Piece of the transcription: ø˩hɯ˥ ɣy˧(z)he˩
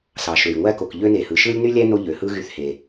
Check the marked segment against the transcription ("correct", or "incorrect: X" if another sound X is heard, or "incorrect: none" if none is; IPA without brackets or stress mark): incorrect: θ